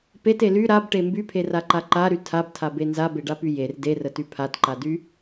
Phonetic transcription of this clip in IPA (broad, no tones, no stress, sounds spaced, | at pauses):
p e t e l y ɾ a b ʈ e m b y pʰ e r a ǃ a ǃ a ɾ y tʰ a b tʰ a b e n z a b e ɖ a p y j e r d e r ə t y pʰ a t ǃ a d y